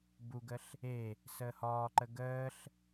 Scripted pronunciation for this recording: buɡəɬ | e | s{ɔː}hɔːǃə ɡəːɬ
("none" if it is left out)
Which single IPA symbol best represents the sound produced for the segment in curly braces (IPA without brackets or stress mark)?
əː